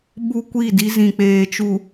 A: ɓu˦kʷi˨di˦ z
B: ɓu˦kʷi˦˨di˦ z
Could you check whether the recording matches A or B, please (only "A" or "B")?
B